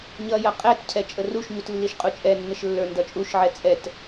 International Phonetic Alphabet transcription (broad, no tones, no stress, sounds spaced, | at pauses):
ɲ ʌ j ʌ qʼ ɛ t cʰ ɛ t͡ʃʼ ə r u ʃ ɲ u t lː i ʃ qʼ u t͡ʃʼ ɛ nː ə ʃ lː ə˞ n d ʌ t͡ʃʼ u ʃ ʕ ɛ t͡sʼ ɛ t